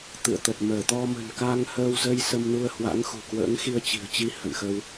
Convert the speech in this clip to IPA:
t̪ ɨ̰˧˨ ə̯ t̪ ə˨˩ t̚ m əː˧˩ t̪ ɔ˧ m ə̤˨˩ n k a˧ ŋ h əː˧ w z ə˧ j s ə˧ m n u˧ ə̯ h w a̰˧˥ ŋ x ṳ˨˩ k w ə̰ː˧˥ ŋ x i˧ ə̯ t͡ɕ i̤˨˩ ə̯ t͡ɕ i˧ h ə̰˧˨ n x ə˧ w

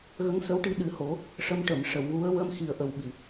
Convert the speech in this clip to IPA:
ɣ ə˧˥ ŋ s ə˧˥ w ʈ i˧ ɗ ɨ˨˩˦ h o˨˩˦ | ʂ ə˧˥ m ʈ ə˨˩˨ m ʂ ə˨˩˨ w ɣ u˧˥ ə̯ w ə˧ m x i˨˩ ə̯ ʔ ə˨˩ w ɓ i˨˩˨

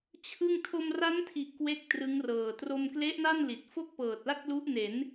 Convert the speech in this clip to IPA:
t͡ɕʰ ɯ˥˩ ŋ tʰ o˧ m r a˦˥ n tʰ i˨˩ ʔ k w e˥˩ k̚ t r ɯ˦˥ ŋ r ɤː˨˩ t r o˧ m k l e˦˥ ʔ n a˥˩ n l i˨˩ t̚ f o˥˩ k̚ p ɤː˨˩ t̚ l a˥˩ k̚ l u˦˥ ʔ n e˩˦ n

